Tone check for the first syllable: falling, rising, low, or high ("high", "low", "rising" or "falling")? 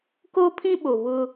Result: high